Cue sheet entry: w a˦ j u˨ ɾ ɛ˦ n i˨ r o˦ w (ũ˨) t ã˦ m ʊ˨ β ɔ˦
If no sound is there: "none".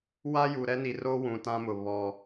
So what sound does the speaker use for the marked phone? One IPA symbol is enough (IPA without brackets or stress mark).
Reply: ũ˨